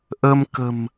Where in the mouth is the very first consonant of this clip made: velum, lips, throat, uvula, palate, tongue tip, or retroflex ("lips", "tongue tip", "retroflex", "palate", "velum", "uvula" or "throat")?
throat